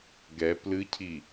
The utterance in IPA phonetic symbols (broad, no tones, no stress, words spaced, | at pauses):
ɡɛ plɨcʰi